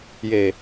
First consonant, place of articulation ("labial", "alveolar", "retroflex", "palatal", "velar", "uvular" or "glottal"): palatal